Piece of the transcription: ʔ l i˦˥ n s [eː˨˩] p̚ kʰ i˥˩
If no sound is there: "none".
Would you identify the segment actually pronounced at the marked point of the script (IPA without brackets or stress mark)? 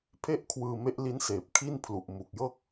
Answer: eː˨˩